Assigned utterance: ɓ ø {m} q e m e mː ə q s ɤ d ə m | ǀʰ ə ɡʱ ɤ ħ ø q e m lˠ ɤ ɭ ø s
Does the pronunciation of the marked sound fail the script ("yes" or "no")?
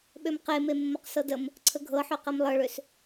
no